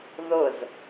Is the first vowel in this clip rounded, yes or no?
yes